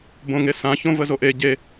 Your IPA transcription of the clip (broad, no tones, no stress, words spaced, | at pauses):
bõŋesã çõvəzoʔe ɟe